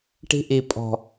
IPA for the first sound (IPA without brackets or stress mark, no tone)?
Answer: ʈ